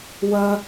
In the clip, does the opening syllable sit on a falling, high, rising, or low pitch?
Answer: high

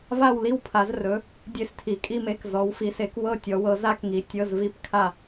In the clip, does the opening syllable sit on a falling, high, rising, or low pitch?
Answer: falling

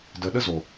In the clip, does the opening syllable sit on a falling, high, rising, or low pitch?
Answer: low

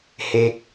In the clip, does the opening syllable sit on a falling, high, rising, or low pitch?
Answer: high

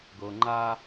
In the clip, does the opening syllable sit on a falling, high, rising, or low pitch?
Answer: low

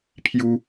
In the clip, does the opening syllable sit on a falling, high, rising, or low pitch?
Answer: high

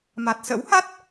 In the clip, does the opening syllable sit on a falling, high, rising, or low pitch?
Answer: low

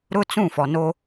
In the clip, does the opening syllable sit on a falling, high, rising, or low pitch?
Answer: high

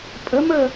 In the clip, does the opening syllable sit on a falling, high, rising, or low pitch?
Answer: rising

